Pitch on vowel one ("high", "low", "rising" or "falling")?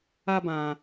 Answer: high